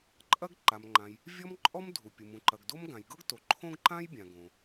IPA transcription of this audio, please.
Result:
ǃʼ ɐ˥ ɡ ǃ a˩ m ŋ͡ǃ ã˩ j | vʲ ɔ˥ m ǃʼ ɔ˥ m dʱ u˩ pʲ u˩ m ũ˩ ǃ ɐ˩ ɡ d o˥ m ɡ ã˩ j ɡ ɤ˥ ɡ t o˩ ǃʰ õ˥ ɡ ǃ ã˥ j bʲ ã˩ ɡ õ˩

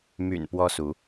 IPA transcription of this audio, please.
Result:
m y̰˨˩ n p w ɔ˦ s u˨˦

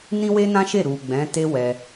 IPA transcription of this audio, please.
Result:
n ĩ˦ w e˦ n ã˦ ʃ e˦˨ ɾ u˨ ɡ͡b ɛ̃˨˦ t e˦ w ɛ˧

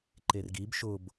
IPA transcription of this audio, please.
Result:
ǃ e r ɡ i b ʃ ʊ b

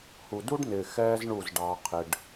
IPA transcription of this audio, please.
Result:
h u˨ d u˦ ɖ n ɪː˨ x ɛː˧ z ɳ u˦˨ z ɖ ɑː˧ qʰ ɪ˧ ɖ

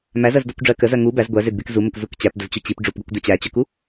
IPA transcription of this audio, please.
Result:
m æ z ɜ z d ɜ kʷ ɖ͡ʐ ɜ k ə z ɜ ŋ u b æ z ɡʷ æ z e d b e k z u m ə kʷ z u k t͡ɕ æ p d ə z t͡ɕ u t͡ɕ i p ɖ͡ʐ u p ɡʷ æ kʷ d œ t͡ɕ æ t͡ɕ œ k u

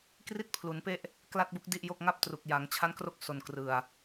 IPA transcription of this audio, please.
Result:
k r i˥˩ t̚ pʰ l u˩˦ n p e˥˩ ʔ | k l a˥˩ t̚ b u˦˥ k̚ d i˥˩ ʔ j o˥˩ k̚ ŋ a˥˩ p̚ t r u˨˩ k̚ j a˩˦ ŋ t͡ɕʰ a˦˥ n k r o˦˥ k̚ s o˧ n k r ɯ˧ a̯

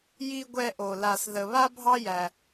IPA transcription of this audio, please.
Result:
j i˨ ɡʷ ɛ˨ ʔ o˩ l a˨ s ð ə˨ β a˦ bʱ ɑ˦ j æ˨

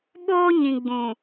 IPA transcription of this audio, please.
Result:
ɓ oː˦ ɲ ĩ˨ ɡ͡b ũ˨

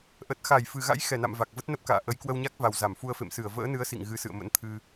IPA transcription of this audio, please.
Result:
ʔ ə˨˩ t̚ x a˧˩ j f ɨ˨˩ ɣ a̰˧˥ j x ɛ˧˩ n a̰˧˨ m v a˨˩ k̚ v ə˦˥ t̚ n ə˦˥ p̚ k a̰ː˧˨ ʔ ə˨˦ j k w ə˧ w ɲ a˦˥ k̚ v a˨˩ w z a˧˩ m f u˧ ə̯ f ḛ˧˨ m s ɨ˧˩ ə̯ v ə̰ː˧˥ n ɨ˨˦ ə̯ s ḭ˧˨ ŋ ɣ ɨ˨˦ s ɨ̰˧˨ ə̯ m ə̰˧˥ n t̪ʰ ɨ˧

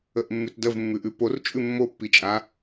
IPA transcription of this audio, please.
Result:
ə ʔ mː ʉ t d ə v mː ʉ ʔ ʉ p o r t͡ʃʼ ʉ mː o pː i t͡ʃʼ a

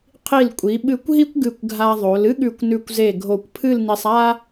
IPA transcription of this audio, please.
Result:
qʰ i˧˩ l kʷʼ i˩˧ ɓ ɨ˧˩ kʷ ɦ i˥ kʷ ɡ ɨ˧˩ kʷ ɡʱ a˧ ðˤ o˩˧ l ɨ˥ ɠ ʉ˧˩ kʷ n ʉ˧˩ kʷ z e˧˩ ɡʱ o˧˩ kʷ pʰ ɨ˥˧ l n i˧ sˤ a˥

